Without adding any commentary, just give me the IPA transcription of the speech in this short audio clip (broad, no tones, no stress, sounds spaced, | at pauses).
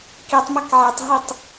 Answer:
k i tˤ m a k ʕ ɛ tˤ ɦ i tˤ